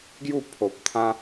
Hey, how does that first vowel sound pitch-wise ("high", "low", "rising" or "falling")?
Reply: falling